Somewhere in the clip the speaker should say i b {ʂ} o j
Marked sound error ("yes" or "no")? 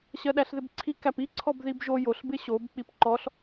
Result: yes